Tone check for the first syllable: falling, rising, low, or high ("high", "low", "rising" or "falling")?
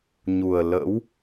low